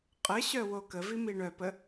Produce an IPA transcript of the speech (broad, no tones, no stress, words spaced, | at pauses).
qʼəɕœ wokəvi miɳœpə